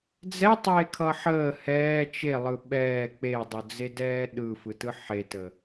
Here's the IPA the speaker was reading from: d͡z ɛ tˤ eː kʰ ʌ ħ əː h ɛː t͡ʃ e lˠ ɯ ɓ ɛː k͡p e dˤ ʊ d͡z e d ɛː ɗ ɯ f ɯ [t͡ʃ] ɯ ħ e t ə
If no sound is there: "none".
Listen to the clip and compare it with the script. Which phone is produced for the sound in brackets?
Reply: t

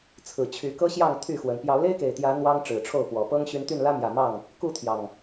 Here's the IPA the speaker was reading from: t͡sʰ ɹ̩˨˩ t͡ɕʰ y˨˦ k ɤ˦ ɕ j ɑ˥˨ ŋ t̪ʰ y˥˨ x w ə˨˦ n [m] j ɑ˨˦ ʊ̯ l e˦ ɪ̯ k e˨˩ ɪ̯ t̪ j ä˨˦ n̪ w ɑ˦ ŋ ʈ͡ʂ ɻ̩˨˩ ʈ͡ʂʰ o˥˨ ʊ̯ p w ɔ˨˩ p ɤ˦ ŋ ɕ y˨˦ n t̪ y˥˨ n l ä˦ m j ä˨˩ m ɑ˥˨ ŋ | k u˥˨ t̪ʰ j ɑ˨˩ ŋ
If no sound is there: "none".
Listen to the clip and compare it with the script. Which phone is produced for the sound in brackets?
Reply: p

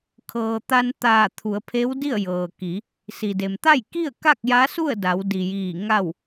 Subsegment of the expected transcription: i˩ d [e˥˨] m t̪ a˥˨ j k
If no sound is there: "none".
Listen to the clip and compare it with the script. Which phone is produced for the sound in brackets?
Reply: e˩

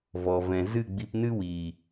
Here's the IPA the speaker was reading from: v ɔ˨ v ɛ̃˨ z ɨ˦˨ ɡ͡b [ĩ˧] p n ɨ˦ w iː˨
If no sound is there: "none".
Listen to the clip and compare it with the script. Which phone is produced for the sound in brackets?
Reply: i˧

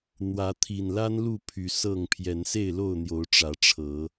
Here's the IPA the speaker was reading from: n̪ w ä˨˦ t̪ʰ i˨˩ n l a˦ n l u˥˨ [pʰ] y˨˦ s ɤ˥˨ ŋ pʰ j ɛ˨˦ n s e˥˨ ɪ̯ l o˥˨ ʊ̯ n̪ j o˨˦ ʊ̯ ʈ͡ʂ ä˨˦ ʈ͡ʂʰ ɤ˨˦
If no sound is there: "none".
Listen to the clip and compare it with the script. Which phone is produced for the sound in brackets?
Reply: pʰ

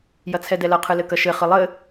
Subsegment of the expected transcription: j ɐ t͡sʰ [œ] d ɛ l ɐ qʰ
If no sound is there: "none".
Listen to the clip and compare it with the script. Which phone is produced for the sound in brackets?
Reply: ɛ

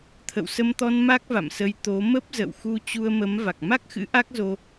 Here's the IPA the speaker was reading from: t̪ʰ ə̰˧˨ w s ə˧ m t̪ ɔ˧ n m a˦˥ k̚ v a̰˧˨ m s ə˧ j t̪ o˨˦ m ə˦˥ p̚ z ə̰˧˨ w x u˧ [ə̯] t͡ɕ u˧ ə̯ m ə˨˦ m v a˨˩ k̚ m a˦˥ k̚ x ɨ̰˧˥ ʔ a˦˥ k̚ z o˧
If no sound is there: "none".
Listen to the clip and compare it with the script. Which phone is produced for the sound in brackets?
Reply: none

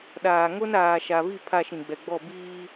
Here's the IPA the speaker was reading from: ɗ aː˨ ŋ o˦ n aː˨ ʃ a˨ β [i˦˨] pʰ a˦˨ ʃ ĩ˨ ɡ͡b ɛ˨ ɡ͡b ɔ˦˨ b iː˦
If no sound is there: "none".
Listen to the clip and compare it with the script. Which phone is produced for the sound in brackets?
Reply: i˦˨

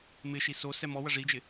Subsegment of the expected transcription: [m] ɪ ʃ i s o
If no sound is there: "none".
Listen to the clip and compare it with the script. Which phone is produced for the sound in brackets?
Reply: m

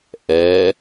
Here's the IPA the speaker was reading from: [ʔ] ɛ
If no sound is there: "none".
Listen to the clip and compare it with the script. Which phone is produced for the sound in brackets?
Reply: ʔ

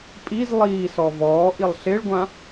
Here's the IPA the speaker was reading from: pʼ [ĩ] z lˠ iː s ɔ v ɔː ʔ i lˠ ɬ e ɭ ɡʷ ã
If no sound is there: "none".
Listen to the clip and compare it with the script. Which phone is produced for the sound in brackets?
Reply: i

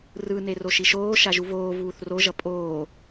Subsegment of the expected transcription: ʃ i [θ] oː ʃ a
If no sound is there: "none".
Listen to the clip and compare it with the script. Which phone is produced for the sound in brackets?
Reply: ʃ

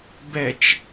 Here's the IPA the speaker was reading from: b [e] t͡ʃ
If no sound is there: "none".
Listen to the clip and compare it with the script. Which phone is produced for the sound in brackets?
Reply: ɛ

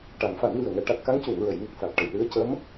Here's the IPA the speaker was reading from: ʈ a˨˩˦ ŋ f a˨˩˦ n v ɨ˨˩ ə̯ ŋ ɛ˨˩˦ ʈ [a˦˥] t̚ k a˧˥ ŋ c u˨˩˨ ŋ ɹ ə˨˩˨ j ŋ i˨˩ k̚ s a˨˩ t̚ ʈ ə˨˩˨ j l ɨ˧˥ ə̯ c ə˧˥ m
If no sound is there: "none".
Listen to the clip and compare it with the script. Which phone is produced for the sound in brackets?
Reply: a˨˩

